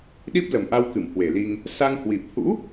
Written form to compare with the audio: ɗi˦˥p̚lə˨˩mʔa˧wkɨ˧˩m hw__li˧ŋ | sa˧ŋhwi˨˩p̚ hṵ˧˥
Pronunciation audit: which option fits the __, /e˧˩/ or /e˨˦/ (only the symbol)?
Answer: e˧˩